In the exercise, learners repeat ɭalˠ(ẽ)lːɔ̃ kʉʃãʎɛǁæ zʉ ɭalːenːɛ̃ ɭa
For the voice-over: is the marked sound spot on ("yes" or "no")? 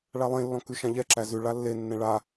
yes